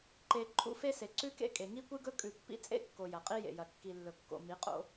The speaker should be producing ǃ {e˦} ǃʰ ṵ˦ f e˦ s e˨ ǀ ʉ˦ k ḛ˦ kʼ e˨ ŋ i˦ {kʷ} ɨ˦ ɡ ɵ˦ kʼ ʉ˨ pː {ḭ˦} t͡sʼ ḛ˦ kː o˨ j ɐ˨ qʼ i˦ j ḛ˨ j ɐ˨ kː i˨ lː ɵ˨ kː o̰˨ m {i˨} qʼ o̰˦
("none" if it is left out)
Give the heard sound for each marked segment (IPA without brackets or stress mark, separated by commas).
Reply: e˨, kʷ, ḭ˦, i˨˦